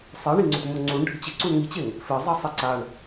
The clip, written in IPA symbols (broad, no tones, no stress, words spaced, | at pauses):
sˤeɳiŋ͡ǀʊtmʊ ŋ͡ǀuɳɖʱɪ t͡ɕɪǀuɳ ŋit͡ɕeŋ | fɪzˤasˤe ǀaɳ